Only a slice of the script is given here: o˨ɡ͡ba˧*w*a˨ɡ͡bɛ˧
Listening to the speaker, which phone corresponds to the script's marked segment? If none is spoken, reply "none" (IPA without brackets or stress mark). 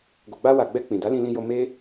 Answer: w